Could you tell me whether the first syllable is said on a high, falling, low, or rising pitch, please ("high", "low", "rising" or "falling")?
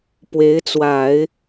rising